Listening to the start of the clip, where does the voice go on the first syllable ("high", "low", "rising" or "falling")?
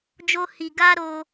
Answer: high